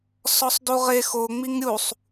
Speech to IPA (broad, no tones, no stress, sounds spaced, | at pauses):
s ɔ sˤ d u ʁ e x o ŋ͡m i ŋ ɾʲ u sˤ